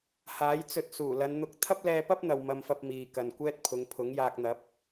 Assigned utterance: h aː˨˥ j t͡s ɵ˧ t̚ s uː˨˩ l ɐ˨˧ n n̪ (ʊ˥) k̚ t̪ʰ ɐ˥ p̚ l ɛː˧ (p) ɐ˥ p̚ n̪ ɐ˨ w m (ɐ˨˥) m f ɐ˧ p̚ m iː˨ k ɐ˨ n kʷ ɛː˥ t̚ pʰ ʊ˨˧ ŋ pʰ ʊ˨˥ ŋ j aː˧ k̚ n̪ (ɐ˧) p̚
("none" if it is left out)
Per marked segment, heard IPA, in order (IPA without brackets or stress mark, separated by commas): ʊ˧, p, ɐ˧, ɐ˨˥